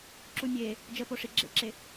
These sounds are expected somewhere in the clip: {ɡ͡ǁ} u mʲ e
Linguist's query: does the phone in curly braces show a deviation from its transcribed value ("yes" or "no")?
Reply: yes